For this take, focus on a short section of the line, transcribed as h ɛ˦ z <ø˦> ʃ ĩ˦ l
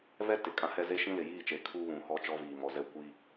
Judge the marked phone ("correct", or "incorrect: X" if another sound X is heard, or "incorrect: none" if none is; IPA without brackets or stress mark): incorrect: e˦